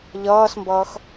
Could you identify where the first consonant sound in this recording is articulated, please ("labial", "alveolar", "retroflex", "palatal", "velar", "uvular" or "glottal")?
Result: palatal